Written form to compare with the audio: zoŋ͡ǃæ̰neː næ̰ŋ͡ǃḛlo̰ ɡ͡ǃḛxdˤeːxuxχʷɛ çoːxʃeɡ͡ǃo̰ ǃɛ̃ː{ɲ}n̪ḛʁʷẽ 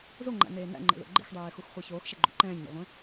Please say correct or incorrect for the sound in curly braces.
correct